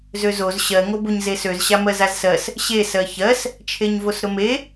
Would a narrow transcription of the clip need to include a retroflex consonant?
no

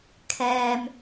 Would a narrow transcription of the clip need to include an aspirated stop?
yes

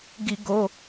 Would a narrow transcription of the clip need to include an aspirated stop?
no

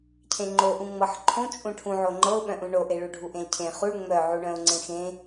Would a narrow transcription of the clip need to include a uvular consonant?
yes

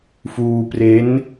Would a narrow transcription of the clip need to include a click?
no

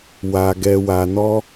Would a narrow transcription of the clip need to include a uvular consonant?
no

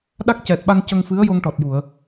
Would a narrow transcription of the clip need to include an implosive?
yes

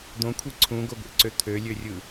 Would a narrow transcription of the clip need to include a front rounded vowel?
yes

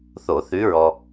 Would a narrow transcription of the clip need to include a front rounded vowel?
no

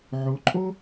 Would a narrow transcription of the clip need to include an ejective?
yes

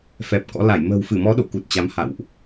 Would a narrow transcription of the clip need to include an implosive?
yes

